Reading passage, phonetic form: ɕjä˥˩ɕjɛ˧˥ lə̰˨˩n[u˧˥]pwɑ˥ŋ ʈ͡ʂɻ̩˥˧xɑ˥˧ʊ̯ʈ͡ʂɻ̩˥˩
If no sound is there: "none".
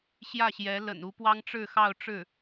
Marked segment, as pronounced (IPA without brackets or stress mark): u˧˥